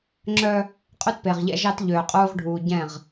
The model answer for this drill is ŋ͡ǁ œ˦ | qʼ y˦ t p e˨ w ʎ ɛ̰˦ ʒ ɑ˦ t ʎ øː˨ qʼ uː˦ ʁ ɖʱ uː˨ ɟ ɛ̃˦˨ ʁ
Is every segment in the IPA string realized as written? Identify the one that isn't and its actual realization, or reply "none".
w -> ʁ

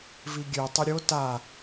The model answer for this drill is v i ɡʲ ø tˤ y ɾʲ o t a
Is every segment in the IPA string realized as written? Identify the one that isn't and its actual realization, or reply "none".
none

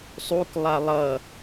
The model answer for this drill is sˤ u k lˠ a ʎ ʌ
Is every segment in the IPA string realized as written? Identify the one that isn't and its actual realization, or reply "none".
ʎ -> lˠ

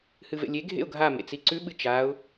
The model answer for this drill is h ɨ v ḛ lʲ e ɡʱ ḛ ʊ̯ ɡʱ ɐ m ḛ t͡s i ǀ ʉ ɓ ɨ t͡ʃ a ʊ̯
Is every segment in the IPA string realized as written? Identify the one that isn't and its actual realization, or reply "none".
ɐ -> a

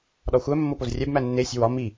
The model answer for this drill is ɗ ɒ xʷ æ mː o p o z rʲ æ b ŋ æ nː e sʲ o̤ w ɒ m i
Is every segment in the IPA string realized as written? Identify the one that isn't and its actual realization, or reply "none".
ŋ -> m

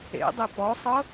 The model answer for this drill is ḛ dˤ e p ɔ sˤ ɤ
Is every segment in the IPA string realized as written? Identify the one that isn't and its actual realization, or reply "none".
none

